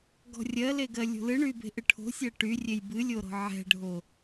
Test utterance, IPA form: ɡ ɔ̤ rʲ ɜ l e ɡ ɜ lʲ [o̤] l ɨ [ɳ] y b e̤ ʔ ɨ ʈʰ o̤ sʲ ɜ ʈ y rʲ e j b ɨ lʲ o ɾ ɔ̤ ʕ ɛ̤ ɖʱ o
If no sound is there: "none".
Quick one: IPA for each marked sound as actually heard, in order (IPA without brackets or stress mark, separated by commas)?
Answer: o̤, ɳ